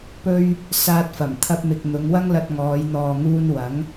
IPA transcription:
p ɵ˥ ɥ | s aː˧ t̚ f ɐ˨˩ m t̪ʰ ɐ˧ p̚ m ɪ˨ k̚ n̪ ʊ˨˧ ŋ w ɐ˥ ŋ l ɐ˧ t̚ ŋ ɔː˨˧ j n̪ ɔː˨ ŋ uː˧ n w ɐ˨˥ ŋ

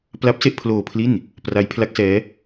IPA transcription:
p l a˦˥ p̚ s e˥˩ ʔ pʰ l oː˧ pʰ l i˥˩ n | p r a˦˥ j pʰ l a˦˥ k̚ s ɛː˦˥

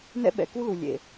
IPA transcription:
n ɛ̰˧ ɓ ɛ̰˩ k u˧ l u˩ lʲ ḛ˩

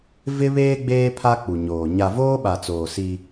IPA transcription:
v ɪ˦ β eː˦ ɡ͡b eː˦ pʰ a˦ k͡p u˨ ɲ oː˨ ɲ a˨ v oː˦ ɓ a˨ t͡s oː˨ s i˦

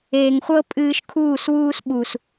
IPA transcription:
eː˨ ŋ χʷ ɤ˦ pʼ ɨː˧ ʃ kʰ uː˦˨ s w uː˦ s ɓ u˨ s

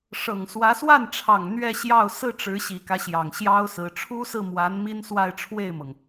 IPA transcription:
ʂ ɤ˨˩ ŋ s w ä˧˥ s w a˥˩ n ʈ͡ʂʰ ɑ˨˩ ŋ n̪ ɥ ɛ˥˧ ɕ j ɑ˥˧ ʊ̯ s ɹ̩˥˩ ʈ͡ʂ ɻ̩˧˥ ɕ i˨˩ k ä˦ ɕ j ɑ˨˩ ŋ ɕ j ɑ˥ ʊ̯ s ɹ̩˧˥ ʈ͡ʂʰ u˥ s ɹ̩˥˩ m w a˧˥ n m i˥ n s w a˥˧ ɪ̯ ʈ͡ʂʰ w e˥˩ ɪ̯ m ɤ˩ ŋ

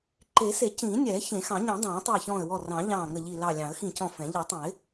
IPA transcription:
ǃ e˨˩˦ s e˨˩˦ c ĩː˨˩˦ nʲ ɛː˨˩˦ ç ẽ˨˩˦ x ɑ̃˨˩˦ ɲ ĩ˨˩˦ dˤ ɑ̃ː˨˩˦ tˤ ɛː˧˩ ç ɔ̃ː˧˩ ə̯ w ɔ˧˩ r ɑ̃˨˩˦ ʎ ɑ̃ː˧˩ ŋ ə˧˩ ʎ i˧˩ l ɑ˧˩ lʲ ɑ̃˨˩˦ ə̯ x ĩ˧˩ c ɔ̃˧˩ f ɛ̃˨˩˦ ʎ ɛ˨˩˦ tˤ ə̃˨˩˦ ɪ̯

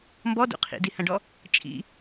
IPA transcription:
m b ɔ d ṵ qʰ ḭ d i h ɐ̃ ɖ ɔ | t͡ʃʼ ḭ

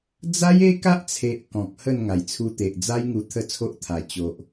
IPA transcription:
d͡z a˦ j e˦ k a˦ ʔ t͡sʰ e˨ ʔ k ɔ̃˨ k̚ h ə˥˧ n ŋ a˨˩ j t͡sʰ u˧ t̪ e˨ ʔ d͡z a˦ j ŋ u˧ t̪ʰ ə˦ t͡sʰ o˦ ʔ t̪ʰ a˨˩ t͡ɕ o˨ ʔ

